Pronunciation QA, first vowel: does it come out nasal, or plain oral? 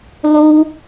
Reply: oral